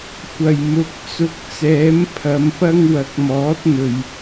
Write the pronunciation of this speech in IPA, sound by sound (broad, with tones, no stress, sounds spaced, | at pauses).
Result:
kʷ ɐ˨˩ j m ʊ˨ k̚ t͡s ʊ˨ k̚ t͡s ɛː˨˥ m pʰ ɐ˨˧ m p ɐ˥ ŋ w ɐ˨˥ k̚ m ɔː˨˥ t̚ n̪ ɵ˨ ɥ